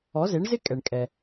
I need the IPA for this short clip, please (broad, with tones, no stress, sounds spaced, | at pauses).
ɔ˩˥ z e˩˥ ɳ z ɪ˥ kʼ ɛ˩ ɳ kʼ ɛ˩